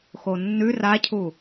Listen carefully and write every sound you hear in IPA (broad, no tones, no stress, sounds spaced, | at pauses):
x o nː ʉ r a cʰ u